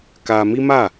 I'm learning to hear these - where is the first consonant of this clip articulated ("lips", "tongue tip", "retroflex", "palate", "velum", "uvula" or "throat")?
velum